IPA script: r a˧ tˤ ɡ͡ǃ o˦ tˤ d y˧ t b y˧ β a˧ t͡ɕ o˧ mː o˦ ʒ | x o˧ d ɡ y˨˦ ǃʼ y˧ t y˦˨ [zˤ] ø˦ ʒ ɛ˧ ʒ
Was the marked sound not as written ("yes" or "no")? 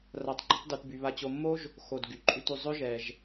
no